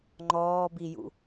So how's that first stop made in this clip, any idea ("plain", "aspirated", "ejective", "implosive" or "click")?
click